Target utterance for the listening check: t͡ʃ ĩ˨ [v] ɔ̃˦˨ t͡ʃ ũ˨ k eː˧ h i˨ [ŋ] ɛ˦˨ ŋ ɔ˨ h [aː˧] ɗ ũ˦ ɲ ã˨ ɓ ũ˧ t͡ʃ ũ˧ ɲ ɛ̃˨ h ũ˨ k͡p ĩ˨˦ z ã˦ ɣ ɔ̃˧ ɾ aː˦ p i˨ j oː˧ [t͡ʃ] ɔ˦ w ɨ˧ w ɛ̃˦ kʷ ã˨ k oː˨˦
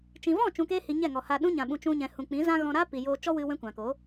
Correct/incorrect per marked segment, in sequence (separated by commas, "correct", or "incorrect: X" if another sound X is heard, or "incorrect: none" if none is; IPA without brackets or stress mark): correct, incorrect: ɲ, correct, correct